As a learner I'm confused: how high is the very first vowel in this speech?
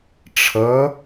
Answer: mid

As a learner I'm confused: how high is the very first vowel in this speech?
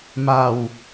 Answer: low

